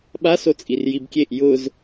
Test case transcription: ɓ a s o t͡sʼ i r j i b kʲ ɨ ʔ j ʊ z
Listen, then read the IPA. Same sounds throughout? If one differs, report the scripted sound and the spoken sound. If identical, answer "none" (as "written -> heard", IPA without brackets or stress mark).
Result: ɨ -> e